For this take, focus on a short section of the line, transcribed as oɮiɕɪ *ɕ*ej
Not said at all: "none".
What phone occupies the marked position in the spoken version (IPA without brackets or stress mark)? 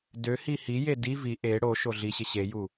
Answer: ɕ